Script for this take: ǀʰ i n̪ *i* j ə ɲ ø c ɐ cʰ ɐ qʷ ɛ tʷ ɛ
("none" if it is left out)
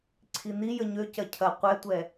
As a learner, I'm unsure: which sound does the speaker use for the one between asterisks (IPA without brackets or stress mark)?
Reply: i